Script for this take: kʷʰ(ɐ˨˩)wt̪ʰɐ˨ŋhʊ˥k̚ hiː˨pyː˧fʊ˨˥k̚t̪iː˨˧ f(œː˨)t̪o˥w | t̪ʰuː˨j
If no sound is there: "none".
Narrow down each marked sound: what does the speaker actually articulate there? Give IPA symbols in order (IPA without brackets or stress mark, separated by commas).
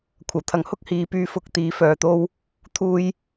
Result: ɐ˨˩, œː˨